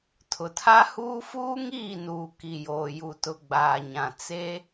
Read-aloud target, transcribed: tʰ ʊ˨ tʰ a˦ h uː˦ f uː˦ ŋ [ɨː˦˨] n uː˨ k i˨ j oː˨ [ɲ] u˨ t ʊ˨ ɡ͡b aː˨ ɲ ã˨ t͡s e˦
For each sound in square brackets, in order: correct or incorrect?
incorrect, incorrect

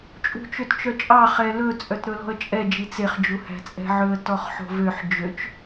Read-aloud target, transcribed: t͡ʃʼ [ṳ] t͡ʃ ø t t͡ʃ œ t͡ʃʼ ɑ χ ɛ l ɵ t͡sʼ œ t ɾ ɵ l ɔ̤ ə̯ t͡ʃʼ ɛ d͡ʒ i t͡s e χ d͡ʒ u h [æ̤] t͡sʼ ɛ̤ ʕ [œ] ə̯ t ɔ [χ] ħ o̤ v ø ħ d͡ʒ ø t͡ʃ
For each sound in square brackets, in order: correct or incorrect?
correct, correct, incorrect, correct

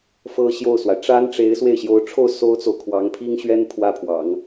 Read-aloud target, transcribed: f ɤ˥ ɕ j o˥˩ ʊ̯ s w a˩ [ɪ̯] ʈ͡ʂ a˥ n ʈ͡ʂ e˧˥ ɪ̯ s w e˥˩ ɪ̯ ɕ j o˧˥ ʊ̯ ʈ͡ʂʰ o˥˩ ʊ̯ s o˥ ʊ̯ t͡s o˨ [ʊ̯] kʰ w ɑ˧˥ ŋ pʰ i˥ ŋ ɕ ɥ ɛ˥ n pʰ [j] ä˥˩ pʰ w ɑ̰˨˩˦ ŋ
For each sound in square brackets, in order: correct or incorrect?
correct, correct, incorrect

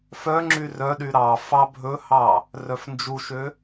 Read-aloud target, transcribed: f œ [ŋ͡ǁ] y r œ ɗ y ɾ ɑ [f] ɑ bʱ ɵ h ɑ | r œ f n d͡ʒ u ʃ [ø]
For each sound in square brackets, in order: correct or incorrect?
correct, correct, correct

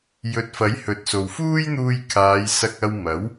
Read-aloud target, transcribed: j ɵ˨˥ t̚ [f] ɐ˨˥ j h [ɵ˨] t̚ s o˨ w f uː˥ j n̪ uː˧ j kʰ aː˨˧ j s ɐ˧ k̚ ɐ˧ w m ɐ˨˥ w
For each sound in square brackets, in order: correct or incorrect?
correct, correct

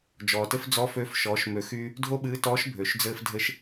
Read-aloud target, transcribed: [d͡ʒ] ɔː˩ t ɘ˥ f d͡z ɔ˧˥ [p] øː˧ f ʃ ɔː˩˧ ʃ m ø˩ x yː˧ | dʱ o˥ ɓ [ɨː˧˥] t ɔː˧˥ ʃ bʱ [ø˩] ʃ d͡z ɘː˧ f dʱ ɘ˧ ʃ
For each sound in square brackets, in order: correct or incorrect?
correct, incorrect, correct, correct

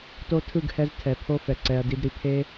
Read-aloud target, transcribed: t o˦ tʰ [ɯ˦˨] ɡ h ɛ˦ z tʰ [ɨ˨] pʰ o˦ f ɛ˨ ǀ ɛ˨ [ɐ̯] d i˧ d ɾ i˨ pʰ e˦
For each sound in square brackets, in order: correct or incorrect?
correct, incorrect, correct

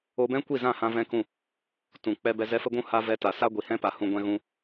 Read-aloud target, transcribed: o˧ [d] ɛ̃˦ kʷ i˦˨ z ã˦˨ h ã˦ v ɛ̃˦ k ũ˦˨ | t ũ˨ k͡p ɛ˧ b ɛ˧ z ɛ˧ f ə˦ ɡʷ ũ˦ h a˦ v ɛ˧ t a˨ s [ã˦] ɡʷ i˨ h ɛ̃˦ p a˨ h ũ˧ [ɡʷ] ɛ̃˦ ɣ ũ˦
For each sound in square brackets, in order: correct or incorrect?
incorrect, incorrect, correct

